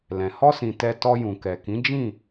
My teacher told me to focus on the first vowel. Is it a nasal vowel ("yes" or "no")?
yes